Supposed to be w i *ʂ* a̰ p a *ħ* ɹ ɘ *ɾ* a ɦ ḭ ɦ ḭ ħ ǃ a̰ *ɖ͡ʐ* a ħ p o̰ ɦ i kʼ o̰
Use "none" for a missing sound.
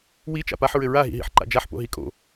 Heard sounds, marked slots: t͡ʃ, ħ, ɹ, d͡ʒ

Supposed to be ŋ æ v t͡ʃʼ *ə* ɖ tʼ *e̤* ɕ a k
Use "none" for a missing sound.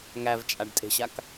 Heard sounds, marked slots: a, e̤

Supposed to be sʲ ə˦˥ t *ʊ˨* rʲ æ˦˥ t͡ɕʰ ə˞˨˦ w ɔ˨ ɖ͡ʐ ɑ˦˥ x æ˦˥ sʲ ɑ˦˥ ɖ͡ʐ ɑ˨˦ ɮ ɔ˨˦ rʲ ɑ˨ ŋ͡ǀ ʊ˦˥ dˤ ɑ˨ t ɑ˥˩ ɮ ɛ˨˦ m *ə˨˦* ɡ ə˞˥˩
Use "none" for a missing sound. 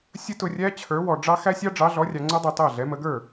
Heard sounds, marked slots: ʊ˨, ə˨˦

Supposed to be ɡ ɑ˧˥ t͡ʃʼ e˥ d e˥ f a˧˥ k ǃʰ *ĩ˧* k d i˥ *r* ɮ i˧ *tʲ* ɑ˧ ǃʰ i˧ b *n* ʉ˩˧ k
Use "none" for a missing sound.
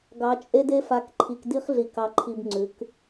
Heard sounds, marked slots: i˧, χ, k, ŋ͡ǀ

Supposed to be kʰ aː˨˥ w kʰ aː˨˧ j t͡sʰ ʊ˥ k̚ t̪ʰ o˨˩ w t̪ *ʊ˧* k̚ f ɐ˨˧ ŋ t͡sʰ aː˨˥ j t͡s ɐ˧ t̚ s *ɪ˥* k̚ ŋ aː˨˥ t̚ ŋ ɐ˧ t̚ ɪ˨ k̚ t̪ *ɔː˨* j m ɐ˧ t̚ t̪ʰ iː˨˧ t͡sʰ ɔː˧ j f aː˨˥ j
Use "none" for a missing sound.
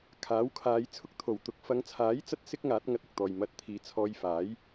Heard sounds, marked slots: ʊ˧, ɪ˥, ɔː˨

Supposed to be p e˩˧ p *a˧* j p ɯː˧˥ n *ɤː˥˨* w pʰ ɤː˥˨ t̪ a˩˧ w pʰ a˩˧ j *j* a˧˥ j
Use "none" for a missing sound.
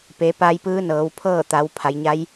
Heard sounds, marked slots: a˧, ɤː˩˧, ɲ

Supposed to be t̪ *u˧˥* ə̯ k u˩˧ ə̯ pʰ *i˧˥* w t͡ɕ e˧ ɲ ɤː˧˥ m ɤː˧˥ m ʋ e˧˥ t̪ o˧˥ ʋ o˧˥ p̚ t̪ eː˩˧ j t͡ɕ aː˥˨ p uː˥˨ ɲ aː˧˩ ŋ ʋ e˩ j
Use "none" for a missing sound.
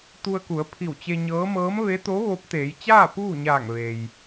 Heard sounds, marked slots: u˧, i˧˩

